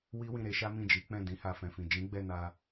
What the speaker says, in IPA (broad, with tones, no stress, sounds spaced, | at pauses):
w i˦ w ĩ˦˨ ɾ e˨˦ ʃ a˦ m ĩ˦˨ d͡ʒ i˨˦ k͡p ɛ̃˦˨ d ĩ˨˦ h a˧ f ɛ̃˨ f ĩ˨ d͡ʒ ĩ˨˦ ɡ͡b ɛ˦˨ n a˧